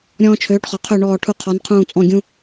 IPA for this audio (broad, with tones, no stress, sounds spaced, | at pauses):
ɾʲ ɔ̃ː˦ t͡ʃʰ øː˨˥ ʈ χ ɔ˨ qʰ ø˦˨ ɳ ɔː˦˨ ʈʰ u˦˨ qʰ ɔ˨˥ n qʰ ũː˦˨ t͡sʼ ɔ̃˦˨ ɡʲ ũ˦